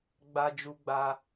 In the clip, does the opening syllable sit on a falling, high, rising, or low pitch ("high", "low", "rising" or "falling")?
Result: high